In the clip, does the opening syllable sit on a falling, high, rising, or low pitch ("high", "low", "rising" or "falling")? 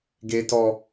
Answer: high